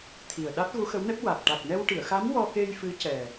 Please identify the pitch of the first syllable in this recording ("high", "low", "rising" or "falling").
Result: low